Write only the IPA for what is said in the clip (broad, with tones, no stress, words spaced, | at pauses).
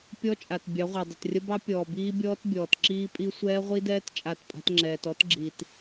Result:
pʲɔ˦t͡ʃʼa˨t bʲɑ˨˦ʁʷa˨dˤə˨trʲə˦ bɑ˦ pʲɔː˨biː˦bʲɔː˦t bʲɔː˨tǁiː˦pʼi˦ sʷɛː˦ʁʷi˦dɛː˦t t͡ʃʼa˦˨tpʼa̤˦tŋ͡ǁɛː˨t ɔ˦tɡ͡ǁi˨t